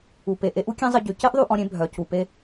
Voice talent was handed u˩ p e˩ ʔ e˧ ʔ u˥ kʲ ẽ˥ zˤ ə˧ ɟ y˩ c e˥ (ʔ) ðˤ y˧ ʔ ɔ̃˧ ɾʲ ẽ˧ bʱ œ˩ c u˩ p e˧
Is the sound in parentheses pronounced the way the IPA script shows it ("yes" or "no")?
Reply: yes